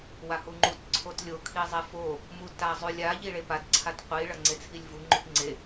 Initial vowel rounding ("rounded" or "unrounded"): unrounded